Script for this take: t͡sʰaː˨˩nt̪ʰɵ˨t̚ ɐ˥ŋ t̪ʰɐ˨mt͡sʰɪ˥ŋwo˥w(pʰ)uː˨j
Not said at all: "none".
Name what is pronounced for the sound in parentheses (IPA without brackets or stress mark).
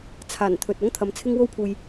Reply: pʰ